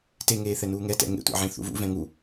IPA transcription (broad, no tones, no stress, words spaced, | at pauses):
teŋeːθɛ nuːŋɛtɛ̰ ŋḛtʷḛʕẽ θṵvṵ vɛ̃ŋu